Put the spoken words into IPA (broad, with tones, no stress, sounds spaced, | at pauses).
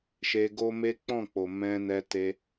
ʃ e˧ ɡ o˦ m e˦ k͡p ɔ̃˦˨ k͡p o˨ m ɛ̃˧ n ɛ˧ t e˧